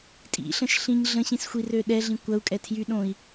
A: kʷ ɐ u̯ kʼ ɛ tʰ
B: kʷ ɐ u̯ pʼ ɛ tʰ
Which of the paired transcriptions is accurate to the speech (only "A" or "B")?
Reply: A